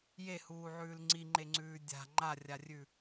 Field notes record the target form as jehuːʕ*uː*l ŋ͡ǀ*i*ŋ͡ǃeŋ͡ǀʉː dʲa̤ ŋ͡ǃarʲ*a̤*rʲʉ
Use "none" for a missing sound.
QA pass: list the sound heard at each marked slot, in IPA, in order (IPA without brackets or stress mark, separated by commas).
ʉː, i, a